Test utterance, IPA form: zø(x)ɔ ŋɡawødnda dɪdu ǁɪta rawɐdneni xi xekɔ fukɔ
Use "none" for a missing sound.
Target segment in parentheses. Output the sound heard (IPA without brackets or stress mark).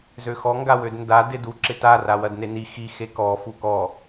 x